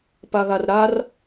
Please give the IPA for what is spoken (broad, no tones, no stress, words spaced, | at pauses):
paɣarɾar